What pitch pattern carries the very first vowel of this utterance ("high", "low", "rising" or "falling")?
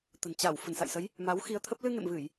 low